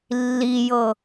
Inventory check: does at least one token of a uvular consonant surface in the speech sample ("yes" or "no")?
no